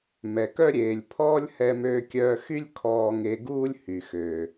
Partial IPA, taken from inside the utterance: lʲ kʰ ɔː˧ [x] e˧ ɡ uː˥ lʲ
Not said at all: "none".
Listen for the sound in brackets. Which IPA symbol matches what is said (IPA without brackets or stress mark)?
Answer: ŋ